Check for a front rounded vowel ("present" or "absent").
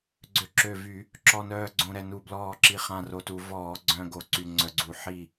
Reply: present